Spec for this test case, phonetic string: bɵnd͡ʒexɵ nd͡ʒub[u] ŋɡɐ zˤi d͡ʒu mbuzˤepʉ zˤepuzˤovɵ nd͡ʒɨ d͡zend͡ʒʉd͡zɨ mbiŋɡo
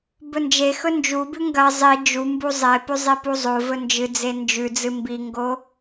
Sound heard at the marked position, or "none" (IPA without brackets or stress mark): ʉ